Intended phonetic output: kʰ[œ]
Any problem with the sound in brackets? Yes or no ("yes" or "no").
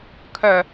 no